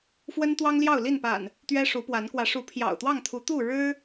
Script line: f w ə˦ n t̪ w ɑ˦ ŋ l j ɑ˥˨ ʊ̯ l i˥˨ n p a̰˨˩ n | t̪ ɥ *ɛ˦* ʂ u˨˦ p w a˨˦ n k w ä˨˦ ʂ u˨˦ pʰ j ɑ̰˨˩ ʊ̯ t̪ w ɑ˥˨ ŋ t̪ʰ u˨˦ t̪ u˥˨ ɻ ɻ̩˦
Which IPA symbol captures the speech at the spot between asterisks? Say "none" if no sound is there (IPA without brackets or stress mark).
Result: ɛ˦